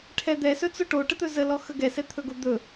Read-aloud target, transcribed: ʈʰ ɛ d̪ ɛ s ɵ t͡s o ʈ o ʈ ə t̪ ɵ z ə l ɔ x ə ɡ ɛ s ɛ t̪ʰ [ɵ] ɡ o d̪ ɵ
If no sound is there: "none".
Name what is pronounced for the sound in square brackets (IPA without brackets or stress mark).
ɵ